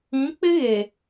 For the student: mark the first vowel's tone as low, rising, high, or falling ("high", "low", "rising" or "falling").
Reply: rising